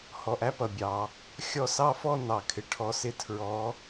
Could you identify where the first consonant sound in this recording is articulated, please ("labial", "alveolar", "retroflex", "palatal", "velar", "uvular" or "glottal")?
glottal